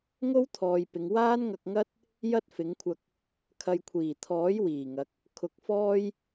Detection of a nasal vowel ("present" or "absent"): absent